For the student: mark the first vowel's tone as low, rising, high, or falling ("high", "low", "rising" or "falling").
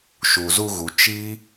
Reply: low